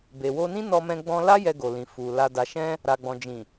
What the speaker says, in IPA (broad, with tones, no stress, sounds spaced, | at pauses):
b e˨ w o˧ n ĩ˦ n ɔ˧ m ɛ̃˧ ɡ͡b ɔ̃˧ l a˦ j ɛ˧ ɡ o˨ l ĩ˨ f u˨ l a˨ d a˨ ʃ ɛ̃˧ | ɾ a˨ ɡ͡b ɔ̃˨ d͡ʒ ĩ˨